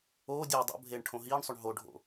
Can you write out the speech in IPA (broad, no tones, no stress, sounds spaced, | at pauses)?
oː dʲ e dˤ o̰ bʱ eː ɳ ʈʰ õ ɦ iː ɳ sˤ o ɳ ɦ o ɖʱ o̰